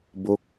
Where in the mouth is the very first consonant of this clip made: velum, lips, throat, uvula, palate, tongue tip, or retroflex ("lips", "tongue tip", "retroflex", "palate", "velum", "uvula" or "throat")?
lips